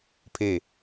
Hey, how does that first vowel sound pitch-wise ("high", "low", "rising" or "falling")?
falling